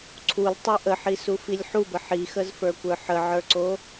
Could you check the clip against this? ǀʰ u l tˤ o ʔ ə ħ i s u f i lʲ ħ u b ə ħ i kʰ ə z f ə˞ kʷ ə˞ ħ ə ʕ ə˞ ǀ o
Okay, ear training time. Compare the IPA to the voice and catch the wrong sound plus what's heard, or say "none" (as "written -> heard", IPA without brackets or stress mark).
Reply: kʰ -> x